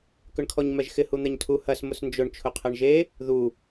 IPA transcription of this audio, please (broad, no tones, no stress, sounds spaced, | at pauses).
k ʏ ɳ kʰ ɔ ɲ m ɛ ʒ x ɪ h u n̪ ɛ ɲ tʰ u h ɐ s m ʊ s n d͡ʒ ʊ ɳ t͡ʃʰ ʊ qʰ ɛ ɳ ʒ e | ð u